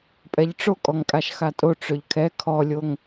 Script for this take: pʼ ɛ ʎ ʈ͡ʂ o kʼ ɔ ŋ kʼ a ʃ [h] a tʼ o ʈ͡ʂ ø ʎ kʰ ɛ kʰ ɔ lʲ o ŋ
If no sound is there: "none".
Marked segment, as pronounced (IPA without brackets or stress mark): x